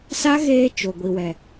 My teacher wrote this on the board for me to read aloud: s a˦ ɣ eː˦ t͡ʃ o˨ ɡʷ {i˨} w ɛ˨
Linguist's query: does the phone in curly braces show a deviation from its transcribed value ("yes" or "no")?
no